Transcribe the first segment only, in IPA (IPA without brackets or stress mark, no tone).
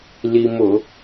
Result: l